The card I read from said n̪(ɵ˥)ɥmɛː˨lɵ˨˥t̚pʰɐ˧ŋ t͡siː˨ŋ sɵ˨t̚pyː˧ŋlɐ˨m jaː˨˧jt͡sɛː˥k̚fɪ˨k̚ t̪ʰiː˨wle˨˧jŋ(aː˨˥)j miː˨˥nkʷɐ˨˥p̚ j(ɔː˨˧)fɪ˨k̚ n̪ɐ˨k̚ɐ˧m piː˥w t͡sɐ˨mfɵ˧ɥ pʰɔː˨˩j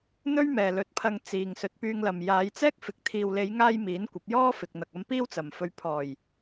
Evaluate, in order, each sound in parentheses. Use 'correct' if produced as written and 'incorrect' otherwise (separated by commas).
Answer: correct, incorrect, incorrect